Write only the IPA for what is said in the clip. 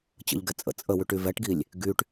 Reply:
t͡ɕ ə̰ ʎ ɡ ɛ t͡sʼ ə̰ t͡sʼ ə w y ʈ y v ɛ ʈ ɡ i lʲ | ɡ y ʈ

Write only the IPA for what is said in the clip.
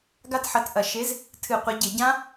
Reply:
ɡ a˦˥ t ħ ɐ˨˥ t ʔ ɐ˧˩˧ ʃ e˨˥ z | tʰ ɨ˧˩˧ qʷ ɐ˨˥ ɟ e˧˩˧ ɟ ã˦˥

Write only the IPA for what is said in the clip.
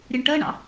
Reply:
ɾʲ ə ɳ ʈ ɜ ɳ ɑ̰

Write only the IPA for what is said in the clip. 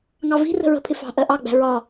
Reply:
ŋ ɑ v i̤ r ə̤ ɹ ə̤ pʰ ɪ f ɑ̤ ʔ ɜ ʔ ɑ ɡ͡b æ̤ ɹ ɒ

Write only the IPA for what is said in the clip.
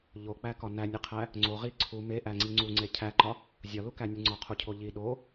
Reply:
ʎ o k͡p æ k ɒ n æ nʲ e qʰ æ | ŋ͡ǀ o ʁ i ǀʰ u m e ʔ æ ŋ͡ǀ i ŋ͡ǀ u ŋ͡ǀ e cʰ æ ǃ ɒ | zʲ ɒ l u k æ nʲ u ŋ͡ǀ ɒ qʰ u cʰ o ʎ i ɗ o

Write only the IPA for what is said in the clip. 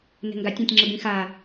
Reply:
n ɛ̤ ŋ ɡ a tʲ ã tʲ ŋ͡ǁ ə b ĩ x a

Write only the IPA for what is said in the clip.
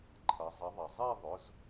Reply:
ǃʰ ʌ˩˧ zˤ ʌ˨˥ ðˤ ʌ˩ zˤ i˥˧ ðˤ ʊ˩˧˩ z

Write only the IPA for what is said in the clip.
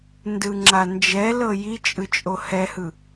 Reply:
n d ɯ ŋ͡ǁ a n d͡ʒ ɛ l ɤ j i t͡ʃʼ ɯ t͡ʃʼ o h ɛ h ɯ

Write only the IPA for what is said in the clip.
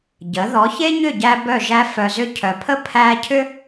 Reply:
ɟ ə˨˦ ð ɔ˨˦ ç e˦ ɲ ʏ˦˨ ɟ æ˧ b œ˦˨ ʒ æ˦ f œ˧ z ʏ˦ cʰ œ˨ pʰ ə˦ pʰ æ˦ cʰ ʏ˦

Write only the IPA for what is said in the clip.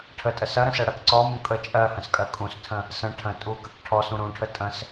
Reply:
ʈʰ ə tʼ ə s ɐ ɾ ə̃ s ɜ ɽ ɜ k ǀ ɔ m ũ kʼ ə t͡ʃʼ ɜ h ə̃ s kʼ ɜ kʼ ũ s tʰ ə̃ | s ə̃ ʈʰ ə̃ tʼ u k ə k ʈʰ ɔ s ũ ɾ ũ ʈʰ ə tʼ ə̃ s

